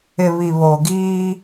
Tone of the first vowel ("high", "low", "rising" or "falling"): low